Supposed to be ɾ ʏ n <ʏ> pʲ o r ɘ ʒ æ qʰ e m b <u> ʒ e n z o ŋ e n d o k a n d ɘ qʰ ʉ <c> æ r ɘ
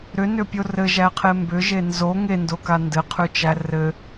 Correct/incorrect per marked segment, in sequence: correct, incorrect, incorrect

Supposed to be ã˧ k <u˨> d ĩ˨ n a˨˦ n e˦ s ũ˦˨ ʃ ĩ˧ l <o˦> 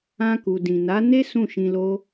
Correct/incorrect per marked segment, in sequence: correct, correct

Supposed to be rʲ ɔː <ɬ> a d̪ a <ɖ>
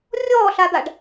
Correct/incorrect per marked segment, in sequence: correct, correct

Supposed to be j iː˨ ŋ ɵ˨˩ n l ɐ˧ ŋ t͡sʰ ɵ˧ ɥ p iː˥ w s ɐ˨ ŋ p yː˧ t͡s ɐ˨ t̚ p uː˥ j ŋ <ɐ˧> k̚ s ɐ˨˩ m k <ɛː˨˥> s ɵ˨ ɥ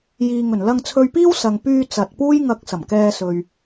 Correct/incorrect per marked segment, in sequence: correct, incorrect

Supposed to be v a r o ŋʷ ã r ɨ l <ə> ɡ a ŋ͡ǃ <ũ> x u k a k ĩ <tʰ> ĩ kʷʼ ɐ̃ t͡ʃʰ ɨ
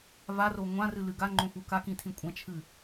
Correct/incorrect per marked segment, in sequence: incorrect, incorrect, correct

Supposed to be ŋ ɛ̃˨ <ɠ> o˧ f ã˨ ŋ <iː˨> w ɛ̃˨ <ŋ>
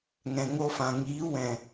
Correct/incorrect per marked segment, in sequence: incorrect, incorrect, incorrect

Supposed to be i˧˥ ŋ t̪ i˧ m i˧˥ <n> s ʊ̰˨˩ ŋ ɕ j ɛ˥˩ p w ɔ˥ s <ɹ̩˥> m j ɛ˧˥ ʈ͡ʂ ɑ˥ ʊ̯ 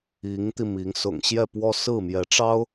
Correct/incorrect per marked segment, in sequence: incorrect, incorrect

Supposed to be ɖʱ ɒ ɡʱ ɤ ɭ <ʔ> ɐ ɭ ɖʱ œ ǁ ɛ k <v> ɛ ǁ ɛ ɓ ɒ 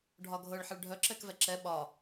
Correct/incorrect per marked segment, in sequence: incorrect, correct

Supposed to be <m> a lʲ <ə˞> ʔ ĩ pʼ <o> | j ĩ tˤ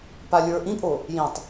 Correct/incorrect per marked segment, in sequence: incorrect, correct, correct

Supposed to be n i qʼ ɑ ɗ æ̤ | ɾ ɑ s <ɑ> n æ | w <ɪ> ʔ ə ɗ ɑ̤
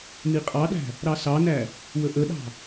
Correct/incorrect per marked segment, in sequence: correct, incorrect

